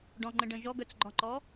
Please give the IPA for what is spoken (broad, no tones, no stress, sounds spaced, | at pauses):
ɖ ɔ̃ ŋ͡ǃ ə̃ ɖ ə̃ ʒ ɔ ɡ œ t͡s ɡ͡ǃ ɔ̃ ǃ ɔ